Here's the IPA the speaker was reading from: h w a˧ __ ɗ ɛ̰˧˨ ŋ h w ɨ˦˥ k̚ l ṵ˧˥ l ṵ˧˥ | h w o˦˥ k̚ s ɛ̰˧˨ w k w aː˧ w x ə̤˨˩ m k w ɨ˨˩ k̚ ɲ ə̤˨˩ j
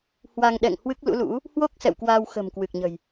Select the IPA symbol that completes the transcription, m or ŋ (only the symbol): ŋ